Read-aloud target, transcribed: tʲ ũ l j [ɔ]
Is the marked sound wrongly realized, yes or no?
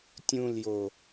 yes